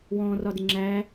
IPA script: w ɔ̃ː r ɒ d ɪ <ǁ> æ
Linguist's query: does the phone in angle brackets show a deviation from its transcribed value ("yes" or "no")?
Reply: yes